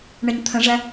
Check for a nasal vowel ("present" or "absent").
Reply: present